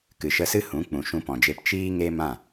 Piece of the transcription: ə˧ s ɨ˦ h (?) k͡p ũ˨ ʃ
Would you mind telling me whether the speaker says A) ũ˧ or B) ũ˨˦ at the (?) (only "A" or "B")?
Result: B